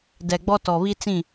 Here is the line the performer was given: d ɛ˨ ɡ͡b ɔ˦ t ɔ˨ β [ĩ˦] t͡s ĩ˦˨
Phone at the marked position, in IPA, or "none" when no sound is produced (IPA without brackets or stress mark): i˦